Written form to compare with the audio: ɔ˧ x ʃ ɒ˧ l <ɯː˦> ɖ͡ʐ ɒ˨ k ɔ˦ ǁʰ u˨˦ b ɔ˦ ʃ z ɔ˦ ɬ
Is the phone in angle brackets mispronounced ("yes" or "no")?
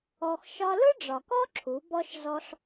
yes